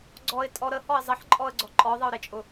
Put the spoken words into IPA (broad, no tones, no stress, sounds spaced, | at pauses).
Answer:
ɡ͡ǀ ɔ ɪ̯ tʼ ɔ ɾ ə h ɔ ɪ̯ zˤ ə ħ ǃʼ ɔ ə̯ ɡ͡ǀ ɔ ǃʼ ɔ ðˤ ə ʊ̯ ɾ e t͡ʃʼ ʊ